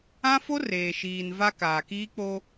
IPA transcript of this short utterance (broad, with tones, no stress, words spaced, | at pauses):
ã˦fo˦ reː˨ ʃiː˨n va˦kaː˨ kiː˦k͡po˦